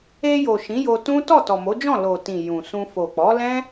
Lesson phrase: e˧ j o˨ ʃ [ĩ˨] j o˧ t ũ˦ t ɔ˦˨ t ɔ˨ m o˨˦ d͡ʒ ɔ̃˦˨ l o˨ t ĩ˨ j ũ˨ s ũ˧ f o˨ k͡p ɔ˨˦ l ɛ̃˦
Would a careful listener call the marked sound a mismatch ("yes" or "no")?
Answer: yes